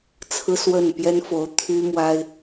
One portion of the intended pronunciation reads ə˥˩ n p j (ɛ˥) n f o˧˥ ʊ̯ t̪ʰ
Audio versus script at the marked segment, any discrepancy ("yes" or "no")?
no